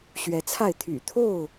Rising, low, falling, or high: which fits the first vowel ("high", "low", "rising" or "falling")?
rising